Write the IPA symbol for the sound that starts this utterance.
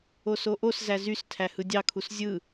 o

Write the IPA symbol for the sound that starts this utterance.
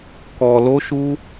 k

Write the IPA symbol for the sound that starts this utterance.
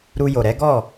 ɾ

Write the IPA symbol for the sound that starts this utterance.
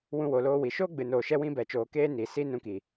w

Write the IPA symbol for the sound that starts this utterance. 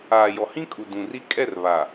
aː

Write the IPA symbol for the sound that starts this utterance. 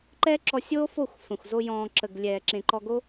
ǃ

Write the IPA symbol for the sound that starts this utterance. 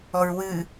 ɔ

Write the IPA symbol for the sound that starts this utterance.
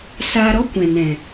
s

